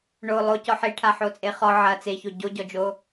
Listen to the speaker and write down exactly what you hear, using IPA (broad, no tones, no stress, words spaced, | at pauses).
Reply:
ɳo lˠocɔ ħiʈʰa ħot͡sʼeχɔ ʕɐ t͡seço ɟoɟɔd͡ʒo